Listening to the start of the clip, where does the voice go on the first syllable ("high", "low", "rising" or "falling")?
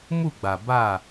falling